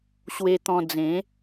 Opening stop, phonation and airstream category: plain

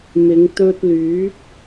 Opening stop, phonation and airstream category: plain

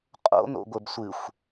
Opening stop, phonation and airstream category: ejective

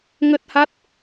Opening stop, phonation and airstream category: plain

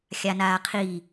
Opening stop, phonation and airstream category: aspirated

